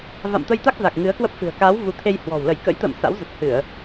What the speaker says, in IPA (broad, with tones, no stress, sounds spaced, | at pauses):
v a̰˧˨ m t̪ ə˧ j t̪ a˦˥ k̚ z a˨˩ k̚ ŋ ɨ˨˦ ə̯ k w ə˦˥ p̚ f ɨ̤˨˩ ə̯ k a˨˦ w v u˨˦ t̪ʰ e˧ j h w ɔ̤˨˩ w l ə˧˩ j k ə̰˧˥ j t̪ ə̰ː˧˨ m s a̰˧˥ w z ə˨˩ t̚ h ɨ˧˩˨ ə̯